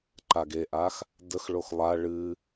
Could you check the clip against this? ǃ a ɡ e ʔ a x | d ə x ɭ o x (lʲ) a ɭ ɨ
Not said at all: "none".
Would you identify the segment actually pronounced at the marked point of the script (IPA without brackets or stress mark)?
lˠ